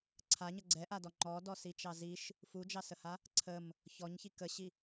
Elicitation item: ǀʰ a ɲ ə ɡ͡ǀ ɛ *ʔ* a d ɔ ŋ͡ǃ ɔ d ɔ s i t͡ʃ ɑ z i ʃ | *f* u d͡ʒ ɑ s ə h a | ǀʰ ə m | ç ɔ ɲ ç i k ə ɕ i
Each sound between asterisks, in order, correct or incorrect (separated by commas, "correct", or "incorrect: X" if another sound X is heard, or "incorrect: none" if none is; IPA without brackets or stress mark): correct, correct